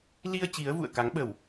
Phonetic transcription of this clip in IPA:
li˧ə̯ t͡ɕi˨˦ə̯vṵ˧˨ə̯ka˨˦ŋɓə˧˩˨w

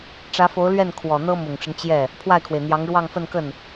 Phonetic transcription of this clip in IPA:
ʈ͡ʂä˧˥fo˧˥ʊ̯lɥɛ˥˩n kʰwɔ˨˩n̪ɤ˥ mʊ˨˩ŋʈ͡ʂə˦n t͡ɕjɛ˥˩ | pʰwa˥˩ɪ̯kʰwe˩ɪ̯n̪jɑ˧˥ŋ ɻwɑ˥˧ŋfə˥˧nkə˥˩n

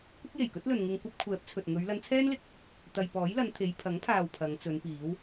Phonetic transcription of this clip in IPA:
kʷɪ˥k̚je˨˩jkɵ˥t̚lɵ˨n ŋɪ˧ŋkʷɐ˥p̚kʷʰɛː˨˥p̚t͡sʰɵ˨t̚ ŋɵ˨˧ɥ lɐ˨˧nt͡sʰɛː˥nlɪ˧k̚ | t̪ɐ˧j pɔː˨˥jlɐ˨˧n t̪ʰe˨˧j pʰɐ˨˥ŋpʰaː˨w pʰɐ˨˧ŋt͡sɵ˨˧npiː˨˥w

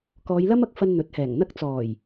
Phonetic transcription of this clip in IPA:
kɔː˨˧jlɐ˥mɐ˧k̚fɐ˧n n̪ɵ˨˥t̚hɛː˨˩ŋn̪ɐ˥k̚ t͡sɔː˨˩j

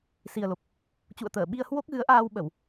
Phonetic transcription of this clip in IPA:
si˨˩ə̯lo˨˩p̚ | t͡ɕṵ˧˨ə̯ t̪əː˧˩ɓi˧ə̯ hwo˦˥k̚ ɣɨ˨˦ə̯ʔaː˧w ɓə˧˩˨w

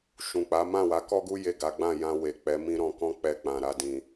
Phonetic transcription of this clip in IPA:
ʃũ˨k͡pa˨˦ mã˦˨wa˨˦kɔ˦ɡu˦ je˦˨ɡa˨˦ ɡ͡bã˦˨jã˧ we˨k͡pɛ˨˦ mĩ˦ɾɔ̃˧kɔ̃˦ k͡pɛ˧k͡pã˨ɾa˧dĩ˨

